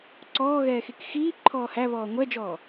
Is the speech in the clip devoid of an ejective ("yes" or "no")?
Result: yes